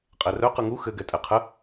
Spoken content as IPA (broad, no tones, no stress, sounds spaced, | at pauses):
qʼ ɛ r œ q ɯ ŋ u x ɘ ɡ ɛ tʼ ɛ qʰ ə